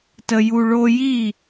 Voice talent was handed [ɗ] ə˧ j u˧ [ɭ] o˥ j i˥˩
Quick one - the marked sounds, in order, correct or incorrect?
incorrect, correct

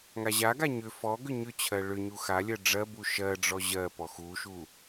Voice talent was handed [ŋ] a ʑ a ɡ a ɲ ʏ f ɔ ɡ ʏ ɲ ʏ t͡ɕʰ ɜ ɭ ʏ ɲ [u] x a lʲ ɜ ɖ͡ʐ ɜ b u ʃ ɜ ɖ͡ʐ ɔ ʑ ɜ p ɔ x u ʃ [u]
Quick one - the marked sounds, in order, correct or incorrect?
correct, correct, correct

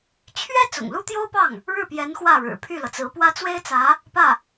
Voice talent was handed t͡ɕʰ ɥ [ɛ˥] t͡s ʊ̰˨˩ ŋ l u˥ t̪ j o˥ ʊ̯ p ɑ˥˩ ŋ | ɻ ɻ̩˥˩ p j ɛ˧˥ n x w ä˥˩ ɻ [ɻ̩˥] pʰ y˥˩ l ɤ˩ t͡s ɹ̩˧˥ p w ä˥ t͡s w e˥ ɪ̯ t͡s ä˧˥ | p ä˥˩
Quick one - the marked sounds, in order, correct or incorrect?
correct, incorrect

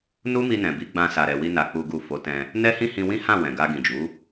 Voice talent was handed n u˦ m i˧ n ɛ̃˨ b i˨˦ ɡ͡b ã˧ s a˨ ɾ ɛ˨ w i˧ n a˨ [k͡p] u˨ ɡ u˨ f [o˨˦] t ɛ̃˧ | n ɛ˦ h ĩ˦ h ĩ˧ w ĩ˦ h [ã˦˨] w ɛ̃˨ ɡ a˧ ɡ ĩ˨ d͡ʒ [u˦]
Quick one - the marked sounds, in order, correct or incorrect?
correct, correct, correct, incorrect

